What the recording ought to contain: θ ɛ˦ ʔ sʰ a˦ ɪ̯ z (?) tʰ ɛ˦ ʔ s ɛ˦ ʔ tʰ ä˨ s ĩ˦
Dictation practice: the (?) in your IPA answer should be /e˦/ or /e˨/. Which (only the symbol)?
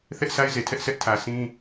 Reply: e˨